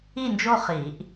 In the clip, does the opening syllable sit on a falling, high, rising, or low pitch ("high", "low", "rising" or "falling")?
falling